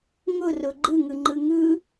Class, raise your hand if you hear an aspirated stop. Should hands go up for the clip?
no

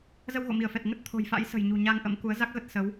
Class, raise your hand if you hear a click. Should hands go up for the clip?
no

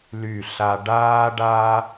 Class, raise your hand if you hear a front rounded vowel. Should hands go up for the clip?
yes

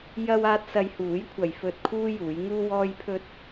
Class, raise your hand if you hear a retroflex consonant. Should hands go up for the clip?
no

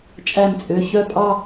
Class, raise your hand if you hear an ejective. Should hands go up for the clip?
yes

